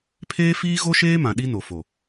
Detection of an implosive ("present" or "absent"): present